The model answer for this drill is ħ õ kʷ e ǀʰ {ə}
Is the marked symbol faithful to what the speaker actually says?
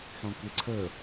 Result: yes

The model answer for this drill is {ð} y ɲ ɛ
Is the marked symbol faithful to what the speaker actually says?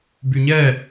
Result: no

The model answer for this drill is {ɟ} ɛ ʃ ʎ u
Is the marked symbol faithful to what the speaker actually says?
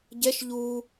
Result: yes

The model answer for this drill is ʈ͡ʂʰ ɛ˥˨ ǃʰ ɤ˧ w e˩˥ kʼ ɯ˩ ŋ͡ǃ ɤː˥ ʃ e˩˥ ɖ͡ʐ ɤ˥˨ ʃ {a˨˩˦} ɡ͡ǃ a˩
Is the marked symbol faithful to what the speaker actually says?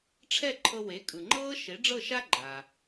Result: no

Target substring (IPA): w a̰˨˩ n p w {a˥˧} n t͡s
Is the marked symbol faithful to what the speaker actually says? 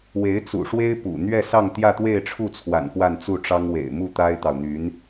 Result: yes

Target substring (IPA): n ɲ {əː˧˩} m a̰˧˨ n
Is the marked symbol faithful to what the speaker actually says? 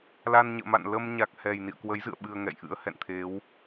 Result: no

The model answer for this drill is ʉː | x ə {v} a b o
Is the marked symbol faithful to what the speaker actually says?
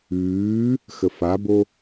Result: no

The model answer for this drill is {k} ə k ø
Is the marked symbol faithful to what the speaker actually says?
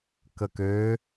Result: yes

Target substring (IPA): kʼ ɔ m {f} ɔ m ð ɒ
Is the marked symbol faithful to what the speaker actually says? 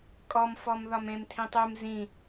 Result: yes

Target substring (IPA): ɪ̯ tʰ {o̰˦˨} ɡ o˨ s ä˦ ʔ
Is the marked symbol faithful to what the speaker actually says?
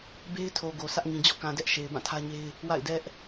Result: no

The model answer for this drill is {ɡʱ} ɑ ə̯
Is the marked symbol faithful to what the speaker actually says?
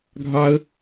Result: yes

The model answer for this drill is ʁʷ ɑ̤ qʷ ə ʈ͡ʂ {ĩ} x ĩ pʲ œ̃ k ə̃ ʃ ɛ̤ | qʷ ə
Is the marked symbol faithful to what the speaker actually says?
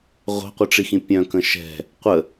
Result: no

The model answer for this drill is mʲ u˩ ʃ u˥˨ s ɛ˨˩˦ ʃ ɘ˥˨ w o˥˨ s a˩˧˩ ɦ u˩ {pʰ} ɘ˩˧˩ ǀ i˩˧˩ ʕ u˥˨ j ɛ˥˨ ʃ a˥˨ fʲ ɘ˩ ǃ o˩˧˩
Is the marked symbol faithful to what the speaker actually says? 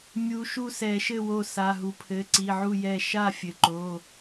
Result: yes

